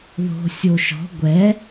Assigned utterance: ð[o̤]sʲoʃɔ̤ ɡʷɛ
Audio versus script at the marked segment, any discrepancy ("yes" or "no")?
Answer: no